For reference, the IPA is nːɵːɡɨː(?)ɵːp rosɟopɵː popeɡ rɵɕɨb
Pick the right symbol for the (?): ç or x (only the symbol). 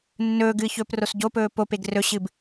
ç